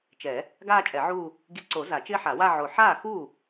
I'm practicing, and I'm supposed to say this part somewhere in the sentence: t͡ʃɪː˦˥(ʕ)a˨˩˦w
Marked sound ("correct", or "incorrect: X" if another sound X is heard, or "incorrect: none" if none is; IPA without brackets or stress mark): incorrect: ħ